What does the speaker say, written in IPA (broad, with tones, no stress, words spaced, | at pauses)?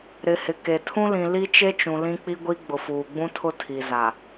ɾɪ˨hɪ˨ ke˨ tʰũ˦lĩ˨ li˦t͡ʃe˦t͡ʃũ˨ lĩ˦k͡pi˦ɡʷi˦ ɡ͡bʊ˨fuː˨ɡ͡bũ˦ tʰʊ˦tʰi˨za˨